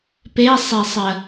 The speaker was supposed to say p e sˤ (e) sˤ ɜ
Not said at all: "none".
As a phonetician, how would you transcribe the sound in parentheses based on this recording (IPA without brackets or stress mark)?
e